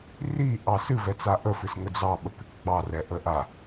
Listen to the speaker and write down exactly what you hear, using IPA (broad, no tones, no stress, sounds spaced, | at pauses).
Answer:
r i ʔ ɑ s ɨ v ɛ t͡s a ʔ ə f ɨ s ŋ ə d͡z ɑ ɓ ə k ɨ k ɡ͡b ɑ r ɛ ʔ ə ʔ a